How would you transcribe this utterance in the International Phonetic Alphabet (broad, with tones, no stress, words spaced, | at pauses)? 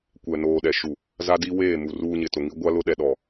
kʷɛ˨noː˨ ɗɛ˨ʃu˨ | za˦di˦ weː˦˨mu˨ ruː˦ɲɪ˨tʊ˨ŋi˦ ɡʷa˦ lʊ˦ ɗɛ˨ɗɔ˨